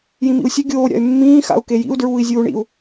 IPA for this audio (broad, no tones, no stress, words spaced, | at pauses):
jĩmḭu̯sʲɵ ɡʲoː ɾʲa̰y̯mːĩː xa̰u̯kejḭu̯ dɹuːi̯zʲuːɳḭu̯